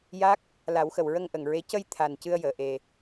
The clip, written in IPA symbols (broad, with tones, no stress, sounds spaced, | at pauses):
j a˦˥ k̚ | l a˨˩˦ w x ə˨˩ w ɹ ə˧ ŋ ʔ ə˨˩ ŋ ɹ e˧˥ c ə˧ j t̪ʰ a˨˩ n c ɨ˧ ə̯ j əː˨˩˨ ʔ e˨˩